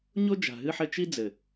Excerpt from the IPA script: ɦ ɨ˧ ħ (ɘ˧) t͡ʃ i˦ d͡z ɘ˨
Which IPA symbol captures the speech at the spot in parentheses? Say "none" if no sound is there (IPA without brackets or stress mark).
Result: ɘ˧